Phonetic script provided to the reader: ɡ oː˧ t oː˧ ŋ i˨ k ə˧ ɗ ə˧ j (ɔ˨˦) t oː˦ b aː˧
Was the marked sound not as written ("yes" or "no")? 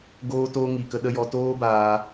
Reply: yes